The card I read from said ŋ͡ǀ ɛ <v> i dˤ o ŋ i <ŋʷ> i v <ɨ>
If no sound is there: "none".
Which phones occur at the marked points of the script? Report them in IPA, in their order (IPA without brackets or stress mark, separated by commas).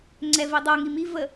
v, m, ə